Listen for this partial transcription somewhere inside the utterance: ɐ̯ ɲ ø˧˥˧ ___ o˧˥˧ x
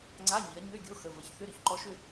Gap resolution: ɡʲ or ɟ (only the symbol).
ɡʲ